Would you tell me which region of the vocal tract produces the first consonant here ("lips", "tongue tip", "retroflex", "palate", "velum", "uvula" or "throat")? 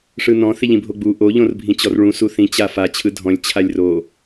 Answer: retroflex